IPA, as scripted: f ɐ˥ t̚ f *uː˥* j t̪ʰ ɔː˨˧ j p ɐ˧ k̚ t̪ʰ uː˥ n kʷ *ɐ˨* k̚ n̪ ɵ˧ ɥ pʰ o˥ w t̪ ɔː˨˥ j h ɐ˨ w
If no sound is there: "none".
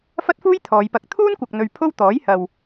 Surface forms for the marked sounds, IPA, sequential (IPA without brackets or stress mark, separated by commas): uː˥, ɐ˨